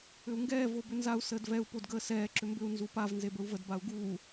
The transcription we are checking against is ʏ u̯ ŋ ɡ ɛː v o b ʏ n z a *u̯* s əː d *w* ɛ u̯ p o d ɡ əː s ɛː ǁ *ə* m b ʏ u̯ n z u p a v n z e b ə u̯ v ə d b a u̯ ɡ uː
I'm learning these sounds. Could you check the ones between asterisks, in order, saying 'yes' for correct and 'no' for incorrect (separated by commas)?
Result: yes, no, no